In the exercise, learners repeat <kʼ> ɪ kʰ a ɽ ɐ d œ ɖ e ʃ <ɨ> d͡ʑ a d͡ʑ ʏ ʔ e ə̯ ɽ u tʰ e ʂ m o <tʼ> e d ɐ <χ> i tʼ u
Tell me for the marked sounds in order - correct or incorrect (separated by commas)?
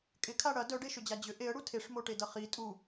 correct, incorrect, incorrect, correct